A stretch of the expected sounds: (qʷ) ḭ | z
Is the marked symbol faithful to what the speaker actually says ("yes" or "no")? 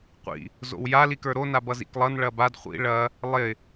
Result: yes